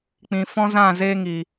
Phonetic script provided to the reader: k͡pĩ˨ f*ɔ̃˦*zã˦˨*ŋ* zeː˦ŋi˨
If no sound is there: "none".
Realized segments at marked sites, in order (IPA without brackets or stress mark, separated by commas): ɔ̃˦, none